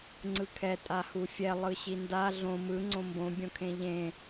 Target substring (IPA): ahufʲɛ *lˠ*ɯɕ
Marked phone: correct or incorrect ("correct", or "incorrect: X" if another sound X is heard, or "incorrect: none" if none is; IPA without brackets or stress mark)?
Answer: correct